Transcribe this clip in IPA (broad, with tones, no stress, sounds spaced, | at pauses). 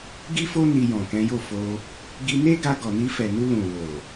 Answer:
ɡ i˦ f o˦ n i˧ j ɔ̃˨ k ɛ̃˨˦ j o˦˨ f o˧ | ɡ i˧ n e˦ ɡ a˧ ɡ ɔ˨ n i˧ f ɛ˨ n u˧ l ũ˨ w o˨